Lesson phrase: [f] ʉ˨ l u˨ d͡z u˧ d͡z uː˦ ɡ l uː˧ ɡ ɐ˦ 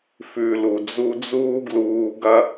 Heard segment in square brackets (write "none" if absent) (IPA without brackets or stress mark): f